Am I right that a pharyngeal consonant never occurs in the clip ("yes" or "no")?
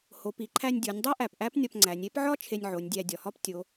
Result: no